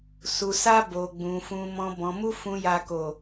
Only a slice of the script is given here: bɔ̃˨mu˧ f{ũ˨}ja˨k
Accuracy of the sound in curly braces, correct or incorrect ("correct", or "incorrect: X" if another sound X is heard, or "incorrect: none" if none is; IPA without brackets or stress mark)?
correct